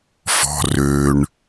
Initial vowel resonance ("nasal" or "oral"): oral